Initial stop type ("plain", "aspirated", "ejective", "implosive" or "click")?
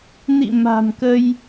plain